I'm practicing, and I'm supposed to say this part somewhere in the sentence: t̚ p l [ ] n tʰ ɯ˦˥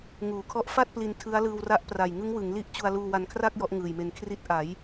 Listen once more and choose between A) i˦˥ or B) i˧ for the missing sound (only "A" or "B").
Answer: B